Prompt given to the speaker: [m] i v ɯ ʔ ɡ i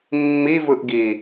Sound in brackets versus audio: incorrect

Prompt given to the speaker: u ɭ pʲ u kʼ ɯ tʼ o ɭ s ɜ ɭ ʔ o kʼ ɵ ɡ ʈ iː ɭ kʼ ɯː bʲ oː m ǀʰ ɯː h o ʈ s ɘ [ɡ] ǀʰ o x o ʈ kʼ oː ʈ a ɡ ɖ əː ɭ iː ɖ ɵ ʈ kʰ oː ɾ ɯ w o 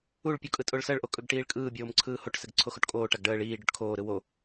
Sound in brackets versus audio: correct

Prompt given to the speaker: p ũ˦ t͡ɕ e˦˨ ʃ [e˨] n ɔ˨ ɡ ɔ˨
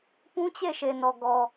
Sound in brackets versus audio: correct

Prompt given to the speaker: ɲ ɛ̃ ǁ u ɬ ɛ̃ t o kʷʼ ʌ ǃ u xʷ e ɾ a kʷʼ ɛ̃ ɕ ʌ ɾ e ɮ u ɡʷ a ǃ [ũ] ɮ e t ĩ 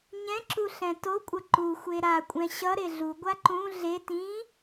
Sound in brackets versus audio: correct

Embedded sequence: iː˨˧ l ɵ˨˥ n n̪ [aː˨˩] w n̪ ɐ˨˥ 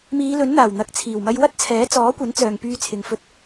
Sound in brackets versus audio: correct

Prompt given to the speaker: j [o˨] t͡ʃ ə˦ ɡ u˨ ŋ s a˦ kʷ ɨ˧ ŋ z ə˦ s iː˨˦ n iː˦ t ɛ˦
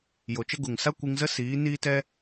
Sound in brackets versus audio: correct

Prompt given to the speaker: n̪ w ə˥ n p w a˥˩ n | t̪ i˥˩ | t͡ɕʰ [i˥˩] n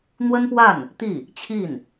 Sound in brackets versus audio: correct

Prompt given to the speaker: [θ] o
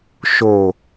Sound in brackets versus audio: incorrect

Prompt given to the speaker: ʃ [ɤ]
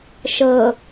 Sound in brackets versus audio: correct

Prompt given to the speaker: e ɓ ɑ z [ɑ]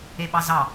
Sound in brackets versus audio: correct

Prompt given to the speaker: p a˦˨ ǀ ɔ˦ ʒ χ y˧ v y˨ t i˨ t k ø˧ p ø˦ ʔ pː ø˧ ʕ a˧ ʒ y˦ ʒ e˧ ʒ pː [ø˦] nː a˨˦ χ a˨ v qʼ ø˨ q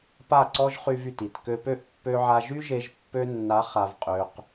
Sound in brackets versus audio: incorrect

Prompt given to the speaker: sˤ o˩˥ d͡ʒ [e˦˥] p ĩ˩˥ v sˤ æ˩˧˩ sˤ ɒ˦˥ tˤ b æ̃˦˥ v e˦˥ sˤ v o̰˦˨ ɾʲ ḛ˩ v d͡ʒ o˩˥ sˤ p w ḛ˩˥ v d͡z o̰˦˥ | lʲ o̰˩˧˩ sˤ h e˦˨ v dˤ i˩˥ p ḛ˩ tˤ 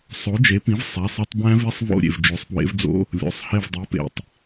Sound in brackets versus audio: incorrect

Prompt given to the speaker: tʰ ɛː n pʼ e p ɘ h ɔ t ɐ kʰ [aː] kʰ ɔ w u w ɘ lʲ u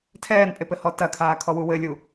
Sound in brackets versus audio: correct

